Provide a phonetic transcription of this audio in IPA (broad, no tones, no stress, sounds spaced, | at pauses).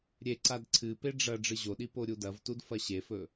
ɾʲ e ǀ a d ǀʰ ɨ p e ɖ͡ʐ ɐ ɖ͡ʐ ɨ ʑ o ɗ i p o ɾʲ u d ɐ v t u d f ɐ ɕ e f ɵ